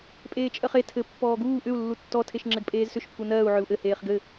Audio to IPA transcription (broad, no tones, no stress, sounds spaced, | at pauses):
pʼ eː t͡ʃʼ ɜ χ e tʰ ɘ pː ɔː ɡ uː ʔ ʏ u̯ lː u tː ɔ tʰ e ʃ ŋ͡ǁ ɘ ɡ pʼ eː z s ʏ ʃ pʰ u n ɜː u̯ ʕ ʏ u̯ ʔ ɘ h eː χ ɡ ɘ